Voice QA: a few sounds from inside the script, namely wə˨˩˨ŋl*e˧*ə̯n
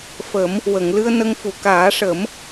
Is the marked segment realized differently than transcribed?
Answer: yes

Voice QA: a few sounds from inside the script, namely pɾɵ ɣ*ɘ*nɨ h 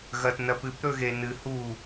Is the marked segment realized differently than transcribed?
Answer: yes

